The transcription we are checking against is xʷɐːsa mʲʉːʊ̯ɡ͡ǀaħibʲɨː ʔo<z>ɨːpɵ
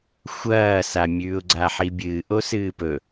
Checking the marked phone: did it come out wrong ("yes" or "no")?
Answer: yes